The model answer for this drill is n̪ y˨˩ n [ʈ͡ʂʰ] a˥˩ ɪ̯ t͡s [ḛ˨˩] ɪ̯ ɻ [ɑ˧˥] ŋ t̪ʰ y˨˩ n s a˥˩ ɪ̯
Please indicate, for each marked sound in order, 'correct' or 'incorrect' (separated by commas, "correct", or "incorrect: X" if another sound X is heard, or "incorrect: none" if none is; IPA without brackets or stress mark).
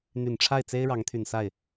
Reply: correct, incorrect: e˥, correct